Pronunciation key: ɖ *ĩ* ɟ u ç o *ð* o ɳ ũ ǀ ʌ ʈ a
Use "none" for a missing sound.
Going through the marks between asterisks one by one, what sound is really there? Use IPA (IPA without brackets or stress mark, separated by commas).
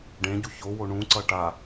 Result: ẽ, w